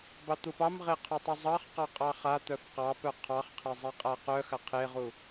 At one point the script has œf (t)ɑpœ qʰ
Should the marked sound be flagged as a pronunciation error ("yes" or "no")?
yes